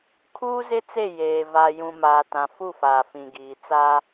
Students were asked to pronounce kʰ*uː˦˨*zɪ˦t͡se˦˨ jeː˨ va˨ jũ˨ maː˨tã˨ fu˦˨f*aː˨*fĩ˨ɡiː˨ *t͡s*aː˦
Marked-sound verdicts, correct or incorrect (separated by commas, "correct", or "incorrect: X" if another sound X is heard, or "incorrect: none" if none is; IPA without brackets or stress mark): incorrect: uː˦, correct, correct